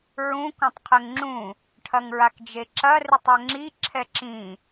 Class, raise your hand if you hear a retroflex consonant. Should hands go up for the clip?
yes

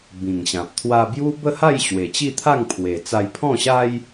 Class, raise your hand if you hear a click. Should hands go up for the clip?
no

